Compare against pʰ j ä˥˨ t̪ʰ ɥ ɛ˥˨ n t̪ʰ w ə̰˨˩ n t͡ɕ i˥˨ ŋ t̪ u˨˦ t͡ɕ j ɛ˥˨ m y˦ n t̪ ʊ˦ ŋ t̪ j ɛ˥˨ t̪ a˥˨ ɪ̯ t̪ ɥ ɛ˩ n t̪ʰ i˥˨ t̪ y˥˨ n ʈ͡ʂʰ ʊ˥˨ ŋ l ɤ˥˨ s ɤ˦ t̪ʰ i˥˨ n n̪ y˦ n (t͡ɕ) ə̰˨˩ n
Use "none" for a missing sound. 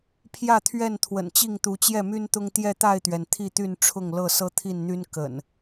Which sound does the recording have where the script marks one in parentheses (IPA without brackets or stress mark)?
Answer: k